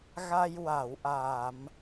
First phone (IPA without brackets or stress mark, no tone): ɣ